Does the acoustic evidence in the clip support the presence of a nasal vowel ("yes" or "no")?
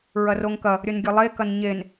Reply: no